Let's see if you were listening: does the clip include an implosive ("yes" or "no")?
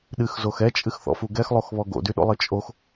yes